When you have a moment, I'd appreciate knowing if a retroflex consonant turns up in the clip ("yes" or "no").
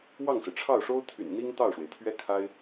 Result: yes